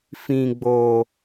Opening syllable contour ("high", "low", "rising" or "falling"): low